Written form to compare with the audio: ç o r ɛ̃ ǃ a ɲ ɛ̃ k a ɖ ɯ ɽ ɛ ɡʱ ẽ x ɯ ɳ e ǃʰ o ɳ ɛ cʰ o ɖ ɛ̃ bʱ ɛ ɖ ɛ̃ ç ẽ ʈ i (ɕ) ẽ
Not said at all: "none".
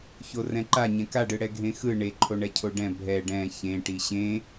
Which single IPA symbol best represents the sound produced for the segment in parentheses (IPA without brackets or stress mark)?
ɕ